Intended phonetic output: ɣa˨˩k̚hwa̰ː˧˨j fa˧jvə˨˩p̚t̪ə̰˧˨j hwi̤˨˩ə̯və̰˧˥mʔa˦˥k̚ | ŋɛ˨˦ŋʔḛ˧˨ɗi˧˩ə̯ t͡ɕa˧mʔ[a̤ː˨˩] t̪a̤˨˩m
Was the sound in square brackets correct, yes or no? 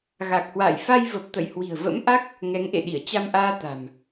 no